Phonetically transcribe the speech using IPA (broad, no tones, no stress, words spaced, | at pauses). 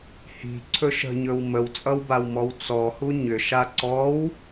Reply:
hi̤ ǀʰɵʃə̤ɲɵw məwt͡sʼʌwbawmɔw t͡sɔhu ɲʏʃa ǀɔw